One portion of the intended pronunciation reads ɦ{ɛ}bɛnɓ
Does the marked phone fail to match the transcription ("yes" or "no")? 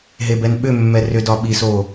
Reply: yes